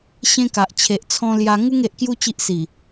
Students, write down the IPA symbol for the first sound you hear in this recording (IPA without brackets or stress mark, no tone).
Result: ɕ